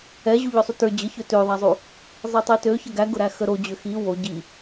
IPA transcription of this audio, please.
ɛ ʑ u ʎ ʊ sˤ u t ə˞ d͡ʑ ə ç ø t ø ðˤ a zˤ u | zˤ i tˤ i t ø ç ə ɡ æ ɡ ʊ ɾ æ x ə ɾ o d͡ʑ ø x i w o ɟ i

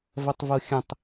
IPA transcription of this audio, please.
v ɐ tˤ v o xʲ ə̃ tˤ

